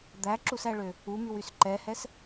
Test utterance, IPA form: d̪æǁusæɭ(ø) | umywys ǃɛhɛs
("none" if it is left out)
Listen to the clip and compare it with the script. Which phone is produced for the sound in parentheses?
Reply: ø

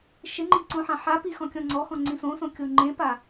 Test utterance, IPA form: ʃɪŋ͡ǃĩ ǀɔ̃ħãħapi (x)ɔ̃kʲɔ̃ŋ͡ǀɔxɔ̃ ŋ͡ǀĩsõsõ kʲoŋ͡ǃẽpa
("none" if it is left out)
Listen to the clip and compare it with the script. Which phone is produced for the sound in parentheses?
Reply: x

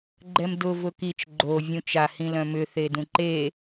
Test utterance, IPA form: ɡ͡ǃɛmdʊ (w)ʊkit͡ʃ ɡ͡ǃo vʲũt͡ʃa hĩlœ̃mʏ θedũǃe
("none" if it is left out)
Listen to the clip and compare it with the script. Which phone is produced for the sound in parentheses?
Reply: v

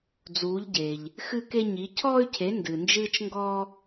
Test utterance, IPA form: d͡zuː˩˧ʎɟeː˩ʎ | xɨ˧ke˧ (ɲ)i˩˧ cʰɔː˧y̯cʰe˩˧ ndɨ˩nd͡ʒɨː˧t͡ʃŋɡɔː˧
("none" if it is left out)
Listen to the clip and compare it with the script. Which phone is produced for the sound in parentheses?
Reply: ɲ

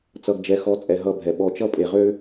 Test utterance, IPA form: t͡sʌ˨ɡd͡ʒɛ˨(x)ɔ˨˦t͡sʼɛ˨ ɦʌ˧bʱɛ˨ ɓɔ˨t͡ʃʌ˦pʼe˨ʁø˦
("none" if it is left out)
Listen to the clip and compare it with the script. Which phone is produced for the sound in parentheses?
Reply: x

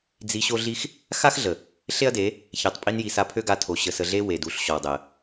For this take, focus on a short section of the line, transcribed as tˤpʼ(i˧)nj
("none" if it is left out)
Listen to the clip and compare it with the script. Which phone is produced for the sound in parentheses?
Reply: i˧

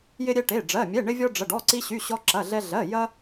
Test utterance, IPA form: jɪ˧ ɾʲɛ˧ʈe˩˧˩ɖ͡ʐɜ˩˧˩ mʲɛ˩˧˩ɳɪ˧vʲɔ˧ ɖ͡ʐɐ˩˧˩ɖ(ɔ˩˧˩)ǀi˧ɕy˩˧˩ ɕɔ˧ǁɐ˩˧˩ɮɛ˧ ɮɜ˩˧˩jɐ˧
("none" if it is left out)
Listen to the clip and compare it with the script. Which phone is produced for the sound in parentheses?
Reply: ɔ˩˧˩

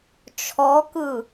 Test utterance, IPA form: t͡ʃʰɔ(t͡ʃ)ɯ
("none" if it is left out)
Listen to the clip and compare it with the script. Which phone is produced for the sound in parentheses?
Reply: k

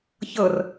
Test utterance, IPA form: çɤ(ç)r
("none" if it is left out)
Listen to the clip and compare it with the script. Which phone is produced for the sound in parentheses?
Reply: none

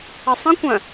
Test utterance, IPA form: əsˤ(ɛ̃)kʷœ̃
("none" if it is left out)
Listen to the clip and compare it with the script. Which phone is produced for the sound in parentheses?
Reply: ə̃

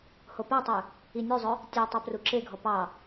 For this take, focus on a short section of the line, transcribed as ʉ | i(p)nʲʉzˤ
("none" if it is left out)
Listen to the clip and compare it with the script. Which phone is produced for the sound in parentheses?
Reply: none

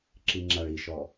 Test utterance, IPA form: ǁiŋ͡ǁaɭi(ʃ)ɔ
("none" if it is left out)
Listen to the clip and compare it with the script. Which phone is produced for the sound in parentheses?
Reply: ʃ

